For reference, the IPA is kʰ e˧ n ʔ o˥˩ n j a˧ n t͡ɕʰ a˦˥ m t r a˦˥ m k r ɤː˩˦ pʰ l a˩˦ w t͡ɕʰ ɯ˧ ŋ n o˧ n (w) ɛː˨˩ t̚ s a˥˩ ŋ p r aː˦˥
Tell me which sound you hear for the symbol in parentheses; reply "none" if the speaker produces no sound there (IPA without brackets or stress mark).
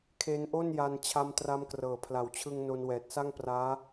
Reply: w